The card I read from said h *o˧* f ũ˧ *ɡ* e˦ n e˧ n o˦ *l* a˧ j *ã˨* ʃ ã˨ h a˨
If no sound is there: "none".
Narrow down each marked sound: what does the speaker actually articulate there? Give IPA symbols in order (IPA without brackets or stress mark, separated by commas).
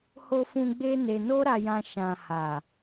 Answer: o˧, ɡ͡b, ɾ, ã˧